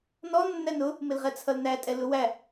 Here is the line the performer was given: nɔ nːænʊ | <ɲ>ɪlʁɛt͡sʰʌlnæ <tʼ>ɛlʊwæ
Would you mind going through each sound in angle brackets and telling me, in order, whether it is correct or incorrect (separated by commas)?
incorrect, correct